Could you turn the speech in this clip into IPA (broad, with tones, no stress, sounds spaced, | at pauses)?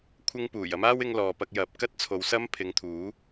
kʷʰ ɪ˧ ŋ p uː˨˩ j ɐ˥ m aː˥ w ɪ˧ ŋ l ɔː˨ p ɐ˧ k̚ j ɐ˨˥ p̚ k ɐ˥ t̚ t͡sʰ o˨˧ w s ɐ˥ m pʰ ɪ˨˧ ŋ t̪ʰ uː˨˥